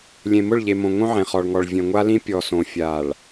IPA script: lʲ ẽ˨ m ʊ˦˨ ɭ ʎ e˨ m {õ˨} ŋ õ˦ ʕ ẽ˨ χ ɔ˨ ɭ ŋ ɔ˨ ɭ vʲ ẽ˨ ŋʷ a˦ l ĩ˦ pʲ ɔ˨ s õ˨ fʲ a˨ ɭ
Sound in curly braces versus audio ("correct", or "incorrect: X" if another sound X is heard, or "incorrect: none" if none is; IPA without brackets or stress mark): correct